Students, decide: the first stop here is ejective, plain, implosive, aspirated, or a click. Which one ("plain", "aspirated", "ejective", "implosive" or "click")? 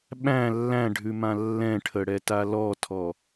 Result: implosive